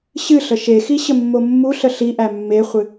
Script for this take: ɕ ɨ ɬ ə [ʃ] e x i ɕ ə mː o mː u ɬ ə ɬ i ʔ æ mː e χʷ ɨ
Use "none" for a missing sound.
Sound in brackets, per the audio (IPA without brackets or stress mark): ʃ